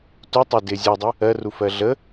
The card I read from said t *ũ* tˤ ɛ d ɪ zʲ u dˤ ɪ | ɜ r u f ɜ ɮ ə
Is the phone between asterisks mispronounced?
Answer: yes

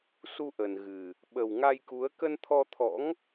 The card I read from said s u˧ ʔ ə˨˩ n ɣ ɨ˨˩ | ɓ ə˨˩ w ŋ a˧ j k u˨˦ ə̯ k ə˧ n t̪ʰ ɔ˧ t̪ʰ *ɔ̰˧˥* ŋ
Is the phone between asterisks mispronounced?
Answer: no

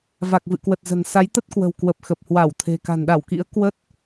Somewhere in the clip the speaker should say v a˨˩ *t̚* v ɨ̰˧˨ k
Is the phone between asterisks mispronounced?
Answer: yes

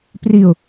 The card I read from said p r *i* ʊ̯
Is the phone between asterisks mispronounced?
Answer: no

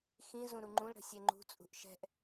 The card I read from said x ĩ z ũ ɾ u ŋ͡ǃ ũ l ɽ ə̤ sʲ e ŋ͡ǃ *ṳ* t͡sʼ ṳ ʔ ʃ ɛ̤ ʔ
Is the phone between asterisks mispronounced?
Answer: no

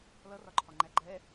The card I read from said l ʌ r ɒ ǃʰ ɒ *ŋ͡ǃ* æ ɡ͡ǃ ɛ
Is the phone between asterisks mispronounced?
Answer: no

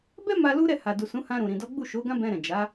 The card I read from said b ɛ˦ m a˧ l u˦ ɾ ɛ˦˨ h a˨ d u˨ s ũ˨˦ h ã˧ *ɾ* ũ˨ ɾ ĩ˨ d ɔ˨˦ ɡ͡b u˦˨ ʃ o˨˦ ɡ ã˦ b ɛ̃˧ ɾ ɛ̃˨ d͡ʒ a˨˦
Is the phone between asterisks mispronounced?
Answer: no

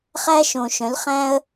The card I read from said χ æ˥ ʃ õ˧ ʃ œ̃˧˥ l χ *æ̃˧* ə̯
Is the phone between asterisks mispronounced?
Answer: yes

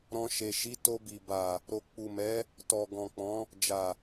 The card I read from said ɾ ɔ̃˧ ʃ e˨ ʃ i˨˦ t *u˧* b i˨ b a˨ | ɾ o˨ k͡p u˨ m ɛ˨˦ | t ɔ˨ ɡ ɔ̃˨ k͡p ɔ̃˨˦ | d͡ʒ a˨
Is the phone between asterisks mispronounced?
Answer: yes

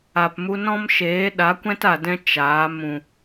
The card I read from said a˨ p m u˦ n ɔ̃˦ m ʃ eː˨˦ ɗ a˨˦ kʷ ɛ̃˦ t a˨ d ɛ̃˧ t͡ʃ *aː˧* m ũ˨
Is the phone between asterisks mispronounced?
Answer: yes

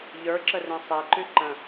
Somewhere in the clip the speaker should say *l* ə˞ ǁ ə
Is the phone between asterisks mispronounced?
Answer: yes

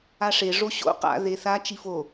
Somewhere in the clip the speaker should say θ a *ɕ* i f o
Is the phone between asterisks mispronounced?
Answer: yes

